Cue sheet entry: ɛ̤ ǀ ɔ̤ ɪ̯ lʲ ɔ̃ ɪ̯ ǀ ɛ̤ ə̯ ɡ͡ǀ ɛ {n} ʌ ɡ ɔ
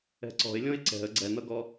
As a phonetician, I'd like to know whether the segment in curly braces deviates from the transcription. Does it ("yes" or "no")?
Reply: no